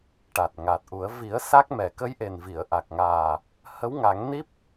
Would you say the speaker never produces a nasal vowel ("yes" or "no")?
yes